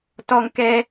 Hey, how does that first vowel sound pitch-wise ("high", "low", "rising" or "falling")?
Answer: high